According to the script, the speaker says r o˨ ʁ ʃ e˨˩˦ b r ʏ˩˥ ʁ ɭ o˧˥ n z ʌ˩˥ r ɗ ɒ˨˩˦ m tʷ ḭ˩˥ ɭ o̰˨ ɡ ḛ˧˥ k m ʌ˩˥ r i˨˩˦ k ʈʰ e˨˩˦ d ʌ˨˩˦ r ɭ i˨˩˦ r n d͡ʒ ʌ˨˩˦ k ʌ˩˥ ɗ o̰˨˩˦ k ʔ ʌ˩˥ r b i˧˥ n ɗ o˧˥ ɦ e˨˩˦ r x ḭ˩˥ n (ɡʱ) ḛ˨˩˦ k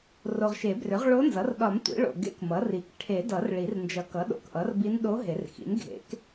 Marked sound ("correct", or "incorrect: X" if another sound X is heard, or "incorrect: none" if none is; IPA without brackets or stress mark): correct